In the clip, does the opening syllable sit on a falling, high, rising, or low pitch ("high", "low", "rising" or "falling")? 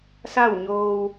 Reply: falling